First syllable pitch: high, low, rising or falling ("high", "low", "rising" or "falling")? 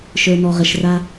low